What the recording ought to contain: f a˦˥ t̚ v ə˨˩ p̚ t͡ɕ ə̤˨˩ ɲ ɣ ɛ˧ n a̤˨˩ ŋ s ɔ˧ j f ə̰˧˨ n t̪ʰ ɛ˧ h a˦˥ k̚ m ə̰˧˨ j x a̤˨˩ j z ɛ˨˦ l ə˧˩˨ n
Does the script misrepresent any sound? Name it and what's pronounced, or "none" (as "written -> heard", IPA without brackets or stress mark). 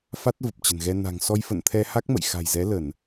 ɲ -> n